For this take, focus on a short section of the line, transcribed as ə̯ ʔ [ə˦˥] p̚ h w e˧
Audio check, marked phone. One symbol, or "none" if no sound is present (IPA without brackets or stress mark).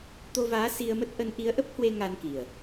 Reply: ə˦˥